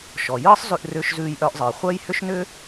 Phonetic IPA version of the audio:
ʃ ɔ˩ j ɯː˥ sˤ z ʉ˧ ʔ r ʏː˧ ʃ z ʉː˧ j ʔ œ˧ ʔ zˤ ɯː˩ χʷ œ˥ j h ʏ˥ ʃ n ʏ˥

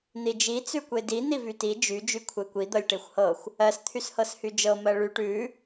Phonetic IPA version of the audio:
n̪ i d͡ʒ i t͡s ʉ kʷ e d i n̪ i v y t i d͡ʒ y d͡ʒ y kʷʰ e kʷ i d̪ ɤ lʲ ʈ e xʷ h ɤ xʷ | ɜ s t̪ʰ y s h ɤ s h y d͡ʒ ɤ m ɜ ɭ y ʈ ʉ

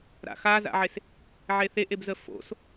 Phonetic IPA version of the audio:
ɾ a̰ x a z a̰ ʕ e s | ʕ e θ e ʔ e b z ə f o̰ s

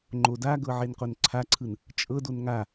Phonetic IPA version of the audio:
ŋ͡ǃ o d a ɡ ɤ ʕ e n q o n ǀʰ a ǀʰ ɯ n | t͡ʃʼ ɤ d o n ŋ a

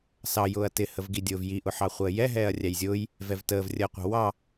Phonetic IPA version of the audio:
s ɑ j ʊː ɐ̯ t ɪ h ə v ɡ i dʲ ʊː v j i ʔ ʊ ħ ɑ χʷ əː j ɛ ɦ ɛː ɐ̯ rʲ æ j zʲ ʊː j | v ɛ v t əː v rʲ əː qʷ ɑ̤ w ɑ

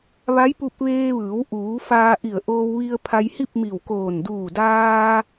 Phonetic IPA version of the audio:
ʋ a˧˥ j p u˧ p̚ ʋ eː˧ ʋ ɯː˩˧ w ʔ uː˩˧ f aː˧ ʔ i˧˩ ə̯ ʔ oː˧ w ʋ i˧ ə̯ pʰ a˧ j h i˥˨ p̚ m i˧˩ w k oː˧˩ n d uː˧˩ d aː˧

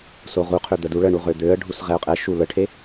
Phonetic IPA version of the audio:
s o ʁ u qʰ ø d̪ ə d u ɭ ə ɳ u ʁ ø d̪ ø ə̯ ɖʱ u s ʁ ɛ ʊ̯ qʼ ɛ ʃ u l ə ʈʰ e

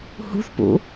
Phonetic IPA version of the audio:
h ṳ θ p ṵ

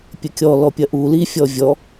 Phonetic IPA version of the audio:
pʲ ɘ kʲ ɔ l ɔ pʲ ɐ ʔ u l i fʲ ɔ vʲ ɔ

